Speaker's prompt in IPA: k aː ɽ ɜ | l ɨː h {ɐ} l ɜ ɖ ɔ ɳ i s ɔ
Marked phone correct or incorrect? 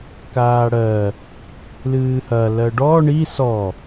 correct